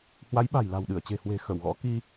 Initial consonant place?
glottal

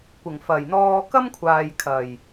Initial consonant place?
velar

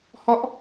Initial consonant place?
glottal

